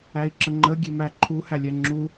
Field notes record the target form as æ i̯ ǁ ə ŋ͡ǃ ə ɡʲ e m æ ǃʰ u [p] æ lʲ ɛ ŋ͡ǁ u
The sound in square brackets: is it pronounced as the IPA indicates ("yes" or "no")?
no